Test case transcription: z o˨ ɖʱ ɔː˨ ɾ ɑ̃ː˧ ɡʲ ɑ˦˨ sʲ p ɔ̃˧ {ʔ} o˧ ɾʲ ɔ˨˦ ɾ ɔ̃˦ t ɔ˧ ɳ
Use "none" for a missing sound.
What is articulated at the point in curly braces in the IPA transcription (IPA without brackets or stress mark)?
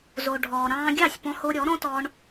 h